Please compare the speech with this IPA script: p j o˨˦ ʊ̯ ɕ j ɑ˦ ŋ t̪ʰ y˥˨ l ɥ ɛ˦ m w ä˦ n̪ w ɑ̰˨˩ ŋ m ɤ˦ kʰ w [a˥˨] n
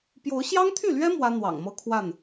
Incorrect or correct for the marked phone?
correct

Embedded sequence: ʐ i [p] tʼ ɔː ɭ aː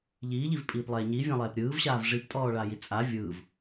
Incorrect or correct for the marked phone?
correct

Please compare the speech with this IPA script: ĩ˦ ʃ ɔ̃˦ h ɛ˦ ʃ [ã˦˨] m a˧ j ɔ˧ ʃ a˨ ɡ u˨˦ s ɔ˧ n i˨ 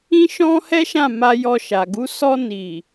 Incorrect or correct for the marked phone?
correct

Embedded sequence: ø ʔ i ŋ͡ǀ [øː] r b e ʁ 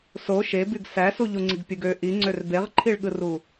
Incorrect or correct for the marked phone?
incorrect: ø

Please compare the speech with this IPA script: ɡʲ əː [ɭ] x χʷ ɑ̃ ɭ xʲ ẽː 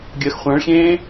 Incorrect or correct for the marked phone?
incorrect: none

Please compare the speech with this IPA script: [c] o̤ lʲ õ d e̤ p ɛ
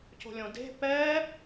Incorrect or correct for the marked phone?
correct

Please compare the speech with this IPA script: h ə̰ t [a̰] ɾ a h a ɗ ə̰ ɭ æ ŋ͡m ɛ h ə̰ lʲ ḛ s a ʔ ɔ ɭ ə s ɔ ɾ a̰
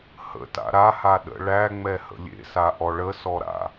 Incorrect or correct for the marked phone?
correct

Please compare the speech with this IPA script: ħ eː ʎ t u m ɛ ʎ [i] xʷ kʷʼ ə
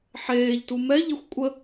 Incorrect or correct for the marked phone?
incorrect: e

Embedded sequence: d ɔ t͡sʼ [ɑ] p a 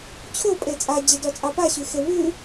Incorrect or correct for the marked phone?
correct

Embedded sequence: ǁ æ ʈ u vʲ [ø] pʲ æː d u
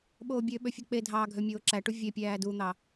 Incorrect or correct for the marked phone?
incorrect: e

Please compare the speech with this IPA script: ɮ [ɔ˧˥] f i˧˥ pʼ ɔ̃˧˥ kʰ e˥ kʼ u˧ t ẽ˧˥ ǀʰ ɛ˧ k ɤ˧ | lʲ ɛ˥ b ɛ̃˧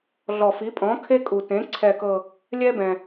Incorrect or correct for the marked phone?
incorrect: ɔ˧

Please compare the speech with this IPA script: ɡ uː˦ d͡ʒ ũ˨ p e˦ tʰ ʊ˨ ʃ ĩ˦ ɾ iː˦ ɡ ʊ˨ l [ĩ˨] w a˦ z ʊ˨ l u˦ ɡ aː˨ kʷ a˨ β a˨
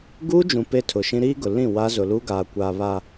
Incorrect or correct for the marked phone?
incorrect: ĩ˦˨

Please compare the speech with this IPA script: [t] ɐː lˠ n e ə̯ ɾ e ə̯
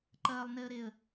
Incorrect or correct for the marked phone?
incorrect: ǃ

